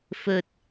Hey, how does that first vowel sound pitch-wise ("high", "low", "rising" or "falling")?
low